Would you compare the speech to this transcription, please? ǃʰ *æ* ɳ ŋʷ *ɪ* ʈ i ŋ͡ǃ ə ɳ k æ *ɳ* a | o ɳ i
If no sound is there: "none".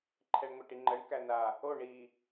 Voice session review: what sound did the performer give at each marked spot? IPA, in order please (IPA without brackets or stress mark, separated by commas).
ɛ, ɛ, n